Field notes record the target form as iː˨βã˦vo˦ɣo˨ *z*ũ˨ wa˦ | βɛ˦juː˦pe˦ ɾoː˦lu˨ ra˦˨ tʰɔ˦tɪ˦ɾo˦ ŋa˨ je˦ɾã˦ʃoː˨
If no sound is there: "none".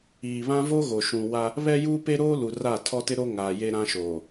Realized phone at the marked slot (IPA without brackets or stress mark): ʃ